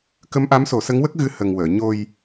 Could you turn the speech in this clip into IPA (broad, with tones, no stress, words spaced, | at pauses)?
kə˧˥mʔa˧˥mso˨˩˦ sə˧˥ŋwə˦˥k̚ɣɨ˧ hə˨˩ŋwəː˨˩˨ ɲo˧j